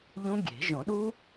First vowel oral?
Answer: no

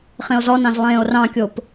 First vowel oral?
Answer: no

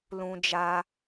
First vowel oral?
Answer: no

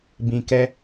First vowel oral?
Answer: no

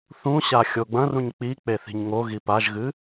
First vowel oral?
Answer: no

